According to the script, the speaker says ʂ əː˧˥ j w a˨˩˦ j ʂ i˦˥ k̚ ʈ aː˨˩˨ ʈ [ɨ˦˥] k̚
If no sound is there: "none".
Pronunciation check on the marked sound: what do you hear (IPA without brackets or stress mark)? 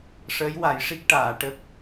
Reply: ə˦˥